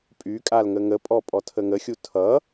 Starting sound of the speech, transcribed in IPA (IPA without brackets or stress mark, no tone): pʼ